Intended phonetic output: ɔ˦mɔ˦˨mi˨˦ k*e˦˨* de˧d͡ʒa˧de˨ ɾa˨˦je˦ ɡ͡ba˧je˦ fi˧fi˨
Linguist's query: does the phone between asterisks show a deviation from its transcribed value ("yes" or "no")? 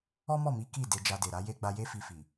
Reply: yes